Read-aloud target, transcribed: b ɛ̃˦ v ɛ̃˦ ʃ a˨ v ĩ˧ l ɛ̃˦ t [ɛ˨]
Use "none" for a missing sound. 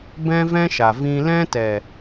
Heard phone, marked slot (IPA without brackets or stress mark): ɛ˨